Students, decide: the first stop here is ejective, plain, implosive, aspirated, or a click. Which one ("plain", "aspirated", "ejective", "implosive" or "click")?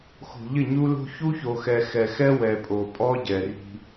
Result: ejective